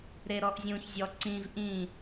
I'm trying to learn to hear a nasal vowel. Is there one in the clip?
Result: yes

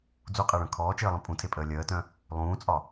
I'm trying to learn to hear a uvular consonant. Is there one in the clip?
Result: yes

